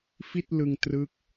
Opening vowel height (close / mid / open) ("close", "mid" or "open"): close